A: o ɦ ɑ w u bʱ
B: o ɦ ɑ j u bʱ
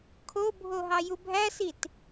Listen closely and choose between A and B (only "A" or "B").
B